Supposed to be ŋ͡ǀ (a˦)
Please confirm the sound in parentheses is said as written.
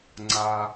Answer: no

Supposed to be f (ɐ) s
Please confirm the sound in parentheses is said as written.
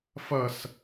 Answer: yes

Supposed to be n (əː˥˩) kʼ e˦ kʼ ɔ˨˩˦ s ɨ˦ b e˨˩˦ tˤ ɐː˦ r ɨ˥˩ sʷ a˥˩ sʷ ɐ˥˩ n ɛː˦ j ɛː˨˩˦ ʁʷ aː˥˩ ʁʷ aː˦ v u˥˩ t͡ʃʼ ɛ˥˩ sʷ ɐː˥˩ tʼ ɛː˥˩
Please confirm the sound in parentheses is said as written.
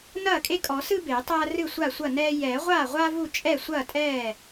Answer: no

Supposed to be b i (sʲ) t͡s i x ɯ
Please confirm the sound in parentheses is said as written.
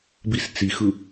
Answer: no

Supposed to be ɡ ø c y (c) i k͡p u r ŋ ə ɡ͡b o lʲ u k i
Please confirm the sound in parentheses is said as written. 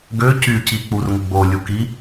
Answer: yes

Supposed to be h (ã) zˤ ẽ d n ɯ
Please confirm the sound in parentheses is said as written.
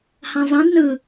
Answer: yes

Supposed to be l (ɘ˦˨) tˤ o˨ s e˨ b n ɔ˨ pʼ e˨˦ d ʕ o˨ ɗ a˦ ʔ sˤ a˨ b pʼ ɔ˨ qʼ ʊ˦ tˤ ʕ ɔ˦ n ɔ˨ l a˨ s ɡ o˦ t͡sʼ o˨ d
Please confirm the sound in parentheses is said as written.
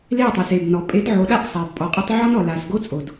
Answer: no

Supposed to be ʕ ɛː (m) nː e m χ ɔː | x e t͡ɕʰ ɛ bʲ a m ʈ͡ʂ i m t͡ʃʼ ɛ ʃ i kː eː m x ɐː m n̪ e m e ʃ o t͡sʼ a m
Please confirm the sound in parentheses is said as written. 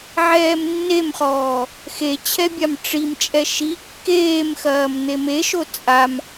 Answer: yes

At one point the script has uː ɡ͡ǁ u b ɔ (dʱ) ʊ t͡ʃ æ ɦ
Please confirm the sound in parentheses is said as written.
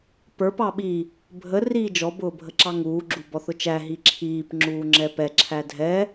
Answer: no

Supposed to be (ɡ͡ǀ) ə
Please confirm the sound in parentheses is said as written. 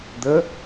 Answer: no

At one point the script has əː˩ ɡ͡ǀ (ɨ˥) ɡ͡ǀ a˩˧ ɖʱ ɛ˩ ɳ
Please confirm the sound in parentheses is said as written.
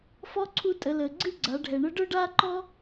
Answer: yes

